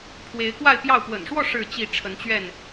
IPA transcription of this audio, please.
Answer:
pʰ w e˨˦ ɪ̯ k w a˥˨ ɪ̯ p j ɑ˥˨ ʊ̯ p w ə̰˨˩ n ʂ w ɔ˥˨ ʂ ɻ̩˥˨ t͡ɕ i˥˨ ʈ͡ʂʰ ə˨˦ n t͡ɕ ɥ ɛ˥˨ n

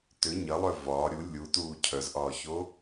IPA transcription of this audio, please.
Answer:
t ʏ ɲ ɐ lˠ œ v ɒː ɾʲ u lʲ u t uː cʰ œ z ʔ ɒː ç o

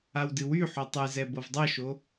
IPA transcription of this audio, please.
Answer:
a w d ɨ w y ħ o tˤ ɨ z ɛ b ɤ v dˤ ɤ ʃ o

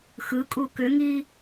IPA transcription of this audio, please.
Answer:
x ɯ kʼ u k ʏ ŋ i

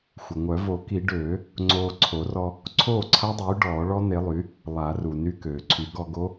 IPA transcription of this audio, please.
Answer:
xʷ ə˩ ŋʷ œ˨˩˦ v o˨˩˦ k i˨˩˦ ɖ øː˨˩˦ | ŋ͡ǀ oː˧ ǀʰ o˨˩˦ r ɔ˧ | ǀʰ oː˥˩ ǀʰ a˦˥ dˤ yː˩˥ ɖ ɔː˨˩˦ ɭ ɔ˦˥ n̪ e˩˥ lˠ y˩˥ | lˠ a˨˩˦ r u˩ n y˧ k øː˩ ǀʰ y˨˩˦ ɡ ɔ˧ ɡ o˦˥

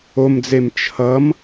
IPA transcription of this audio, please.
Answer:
o m d͡z e m t͡ʃʰ ʌ m

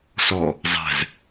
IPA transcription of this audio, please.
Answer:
s ɔ | zˤ ɛ̤ z

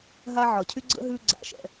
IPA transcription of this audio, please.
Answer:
ɦ a˦ ʕ ɒ˩ cʰ y˥ ɡ͡ǀ ə̰˥ ɦ ʉ˦ ɡ͡ǀ a̰˩ ʃ ɛ̰˩

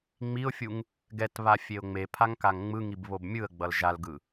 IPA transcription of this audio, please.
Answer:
ŋ͡m i ʊ̯ fʲ u ŋ | ɡ ɛ t β a fʲ e ʊ̯ ŋ͡m e pʰ a ŋ k a ŋ ŋ͡m ɯ ŋ i b β o b mʲ ɯ ə̯ ɡ͡b ʌ l ʒ a l ɡ ɯ

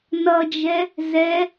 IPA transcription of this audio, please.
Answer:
n ʌ d͡ʒ ɛ | z ɛ

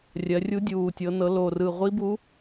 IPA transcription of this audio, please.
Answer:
rʲ ɜ˩˧ rʲ u˧˥ dʲ uː˨˩ tʲ ɤ˩˧ n ɤ˩˧ l o˨˩ r ɯ˨˩ ʁʷ i˧˥ b u˧˥

